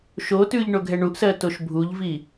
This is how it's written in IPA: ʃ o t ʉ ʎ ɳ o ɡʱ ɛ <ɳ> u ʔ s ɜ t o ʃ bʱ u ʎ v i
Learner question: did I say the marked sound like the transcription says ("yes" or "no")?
yes